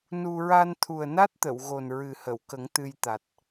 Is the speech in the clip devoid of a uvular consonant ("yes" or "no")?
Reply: yes